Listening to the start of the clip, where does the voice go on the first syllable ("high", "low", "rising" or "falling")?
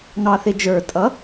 low